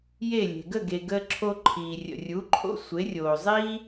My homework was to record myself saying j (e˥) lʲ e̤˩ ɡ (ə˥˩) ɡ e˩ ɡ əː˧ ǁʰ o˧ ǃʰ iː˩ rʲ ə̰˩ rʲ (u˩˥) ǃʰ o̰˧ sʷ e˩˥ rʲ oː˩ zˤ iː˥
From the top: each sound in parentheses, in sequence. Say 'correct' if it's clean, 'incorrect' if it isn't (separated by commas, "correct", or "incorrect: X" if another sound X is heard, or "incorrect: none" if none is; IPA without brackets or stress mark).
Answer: incorrect: e˥˩, correct, correct